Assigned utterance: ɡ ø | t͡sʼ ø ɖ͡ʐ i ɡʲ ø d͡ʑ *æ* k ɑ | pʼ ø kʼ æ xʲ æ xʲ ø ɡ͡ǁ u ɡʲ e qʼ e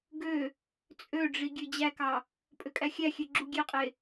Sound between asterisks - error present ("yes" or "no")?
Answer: no